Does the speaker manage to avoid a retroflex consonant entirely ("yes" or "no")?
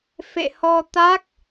yes